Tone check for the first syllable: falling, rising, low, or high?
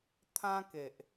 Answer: high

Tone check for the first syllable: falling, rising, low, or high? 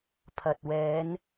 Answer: low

